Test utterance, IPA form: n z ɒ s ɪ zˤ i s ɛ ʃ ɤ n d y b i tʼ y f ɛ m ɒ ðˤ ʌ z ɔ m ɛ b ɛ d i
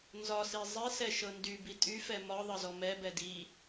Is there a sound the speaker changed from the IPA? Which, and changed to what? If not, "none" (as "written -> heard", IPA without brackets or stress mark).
ɪ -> i